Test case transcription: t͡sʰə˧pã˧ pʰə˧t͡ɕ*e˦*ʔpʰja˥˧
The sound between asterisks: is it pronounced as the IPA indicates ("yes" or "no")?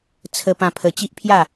no